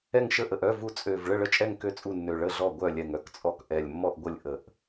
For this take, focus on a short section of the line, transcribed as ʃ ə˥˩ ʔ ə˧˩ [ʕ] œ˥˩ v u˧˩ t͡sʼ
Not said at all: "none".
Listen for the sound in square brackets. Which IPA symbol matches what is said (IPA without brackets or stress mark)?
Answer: ʔ